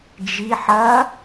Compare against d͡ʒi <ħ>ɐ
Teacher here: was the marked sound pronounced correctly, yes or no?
yes